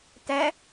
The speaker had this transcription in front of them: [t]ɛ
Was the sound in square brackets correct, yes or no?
yes